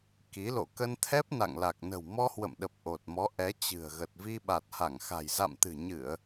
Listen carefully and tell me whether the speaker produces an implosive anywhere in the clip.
yes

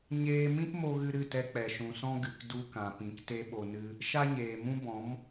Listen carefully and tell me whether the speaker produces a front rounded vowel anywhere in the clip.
no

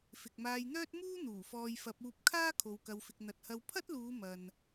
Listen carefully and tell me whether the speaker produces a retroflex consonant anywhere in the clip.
no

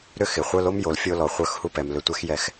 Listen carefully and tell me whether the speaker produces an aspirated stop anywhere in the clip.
no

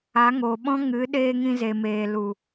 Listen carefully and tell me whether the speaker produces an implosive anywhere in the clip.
yes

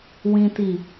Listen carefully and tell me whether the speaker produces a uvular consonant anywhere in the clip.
no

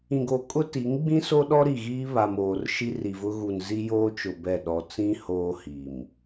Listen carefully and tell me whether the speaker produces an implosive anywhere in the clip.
yes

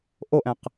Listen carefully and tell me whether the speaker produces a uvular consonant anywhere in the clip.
yes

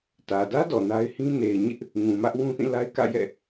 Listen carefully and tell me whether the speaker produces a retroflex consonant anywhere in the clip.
no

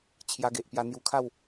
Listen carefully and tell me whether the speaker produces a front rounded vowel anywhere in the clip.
no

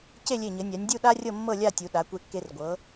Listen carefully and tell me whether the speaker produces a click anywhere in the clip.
no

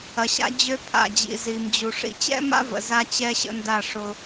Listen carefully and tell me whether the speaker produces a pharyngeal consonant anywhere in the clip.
no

